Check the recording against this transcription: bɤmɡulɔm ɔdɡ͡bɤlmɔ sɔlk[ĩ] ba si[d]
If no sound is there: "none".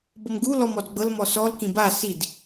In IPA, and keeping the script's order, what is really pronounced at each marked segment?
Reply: ĩ, d

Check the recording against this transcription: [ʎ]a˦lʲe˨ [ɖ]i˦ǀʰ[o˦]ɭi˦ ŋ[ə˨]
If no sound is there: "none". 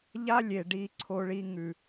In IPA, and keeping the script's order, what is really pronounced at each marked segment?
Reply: ʎ, ɖ, o˦, ʉ˨

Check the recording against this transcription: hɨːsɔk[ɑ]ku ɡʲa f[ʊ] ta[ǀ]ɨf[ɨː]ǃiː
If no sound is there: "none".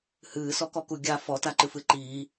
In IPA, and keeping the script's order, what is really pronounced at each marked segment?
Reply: ɔ, ɔ, ǃ, ɨ

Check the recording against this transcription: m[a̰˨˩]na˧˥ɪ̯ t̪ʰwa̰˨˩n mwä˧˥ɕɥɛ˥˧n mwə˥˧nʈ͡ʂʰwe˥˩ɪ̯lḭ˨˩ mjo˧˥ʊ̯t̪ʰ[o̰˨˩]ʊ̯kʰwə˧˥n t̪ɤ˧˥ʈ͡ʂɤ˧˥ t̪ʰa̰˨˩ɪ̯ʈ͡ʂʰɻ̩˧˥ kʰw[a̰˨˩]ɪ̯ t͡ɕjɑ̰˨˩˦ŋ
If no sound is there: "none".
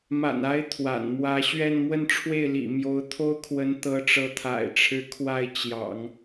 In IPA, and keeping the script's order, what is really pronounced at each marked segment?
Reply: a̰˨˩, o˥, a˥˩

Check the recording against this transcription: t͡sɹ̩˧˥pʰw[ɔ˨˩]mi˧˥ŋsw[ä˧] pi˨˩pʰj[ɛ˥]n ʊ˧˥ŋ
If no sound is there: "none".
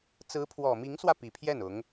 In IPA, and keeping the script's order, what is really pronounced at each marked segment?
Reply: ɔ˨˩, ä˧, ɛ˥˩

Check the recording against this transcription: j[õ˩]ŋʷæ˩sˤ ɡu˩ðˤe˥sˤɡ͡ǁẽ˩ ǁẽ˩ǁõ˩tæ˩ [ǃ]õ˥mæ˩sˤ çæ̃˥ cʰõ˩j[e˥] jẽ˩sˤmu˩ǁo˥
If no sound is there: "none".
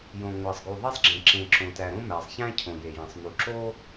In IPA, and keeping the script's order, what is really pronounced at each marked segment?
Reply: õ˩, ɾ, e˩

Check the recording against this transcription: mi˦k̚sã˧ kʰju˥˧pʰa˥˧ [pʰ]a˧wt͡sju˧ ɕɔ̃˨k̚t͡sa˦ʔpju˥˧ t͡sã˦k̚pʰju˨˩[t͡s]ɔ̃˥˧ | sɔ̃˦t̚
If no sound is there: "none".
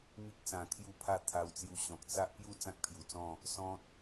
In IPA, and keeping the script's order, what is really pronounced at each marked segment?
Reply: t̪ʰ, t͡s

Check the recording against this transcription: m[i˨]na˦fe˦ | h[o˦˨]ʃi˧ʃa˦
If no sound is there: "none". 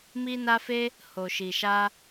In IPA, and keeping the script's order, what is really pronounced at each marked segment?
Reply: i˦, o˧

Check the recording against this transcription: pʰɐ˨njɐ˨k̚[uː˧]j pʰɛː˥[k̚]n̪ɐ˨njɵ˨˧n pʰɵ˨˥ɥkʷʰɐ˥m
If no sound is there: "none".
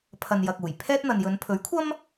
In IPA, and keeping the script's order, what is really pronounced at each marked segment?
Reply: uː˨˩, t̚

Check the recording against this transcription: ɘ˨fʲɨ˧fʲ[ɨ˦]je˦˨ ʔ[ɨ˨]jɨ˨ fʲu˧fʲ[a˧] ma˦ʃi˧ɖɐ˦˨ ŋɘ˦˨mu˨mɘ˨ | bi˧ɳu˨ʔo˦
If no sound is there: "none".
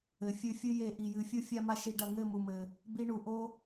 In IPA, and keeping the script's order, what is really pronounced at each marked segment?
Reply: ɨ˦, i˨, a˧

